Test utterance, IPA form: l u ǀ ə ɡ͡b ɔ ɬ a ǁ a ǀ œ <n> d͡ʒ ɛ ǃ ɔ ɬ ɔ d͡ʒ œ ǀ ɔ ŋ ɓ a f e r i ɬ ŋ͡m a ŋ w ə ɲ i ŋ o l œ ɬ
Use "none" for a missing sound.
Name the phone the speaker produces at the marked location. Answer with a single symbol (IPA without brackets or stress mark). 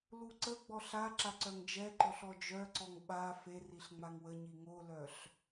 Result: ŋ